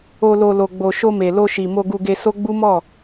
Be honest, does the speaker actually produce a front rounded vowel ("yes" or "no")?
no